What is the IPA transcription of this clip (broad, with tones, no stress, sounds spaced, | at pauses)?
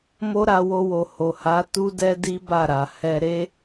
m o˦ ɾ a˧ w o˧ w o˨ h o˨ h a˨˦ t u˦ d ɛ˦ d i˦ b a˦˨ ɾ a˨ h ɛ˧ ɾ e˦